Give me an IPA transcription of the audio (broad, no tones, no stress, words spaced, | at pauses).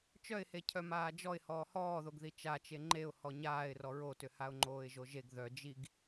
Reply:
t͡ʃœɪ̯he cʰœmaːd͡ʒɔɪ̯ hɔːhɔːðoɡði t͡ʃat͡ʃe ŋ͡ǃeʊ̯ hɔɲaːɪ̯rɔ ɹotʏhaʊ̯ ŋ͡ǃoːɪ̯ʒoʒeɡ ðœ d͡ʒiɡ